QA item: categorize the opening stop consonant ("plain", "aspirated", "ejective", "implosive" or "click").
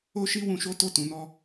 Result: plain